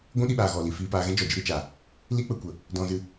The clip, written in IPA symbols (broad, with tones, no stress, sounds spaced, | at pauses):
ɡʷ ũ˦ ɗ i˧ ɓ aː˨ ɣ ɔ˨ l i˨ f iː˧ p aː˧ ɣ ɛ̃˦ d͡ʒ ɔ˨ d͡ʒ ɨ˧ ɾ i˧ t͡ʃ aː˨ | l i˦ k͡p ə˧ kʷ ə˨ | d ɔ̃˧ z ɨ˧